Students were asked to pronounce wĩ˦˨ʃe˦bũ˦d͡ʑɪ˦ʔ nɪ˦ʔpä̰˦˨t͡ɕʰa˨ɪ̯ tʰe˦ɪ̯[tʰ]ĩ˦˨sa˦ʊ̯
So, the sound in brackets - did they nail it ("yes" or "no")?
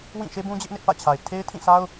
yes